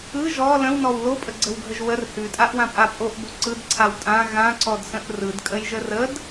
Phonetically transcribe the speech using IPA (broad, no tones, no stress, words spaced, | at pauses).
ɯ ʒɔ lə̃wnɔw lopʼəɡ͡ǀəwɡʱəʒ wər hʉtʼaʔwãpʼa pʼoʔbo ǀɯdǀʰaw tʼã ɣãǀɔdsə̃ʔ rɯdkʼəjʒə rəd